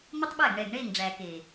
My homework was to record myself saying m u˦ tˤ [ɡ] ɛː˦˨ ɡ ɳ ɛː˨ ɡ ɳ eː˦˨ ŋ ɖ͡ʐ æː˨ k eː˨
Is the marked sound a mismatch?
yes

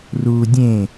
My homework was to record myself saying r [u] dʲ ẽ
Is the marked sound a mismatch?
no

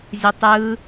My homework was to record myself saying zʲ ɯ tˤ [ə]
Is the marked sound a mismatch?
yes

